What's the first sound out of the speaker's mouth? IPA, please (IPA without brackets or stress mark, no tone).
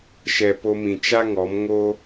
ʃ